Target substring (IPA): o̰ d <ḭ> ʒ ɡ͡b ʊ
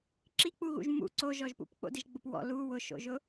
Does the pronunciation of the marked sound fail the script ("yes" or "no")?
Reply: yes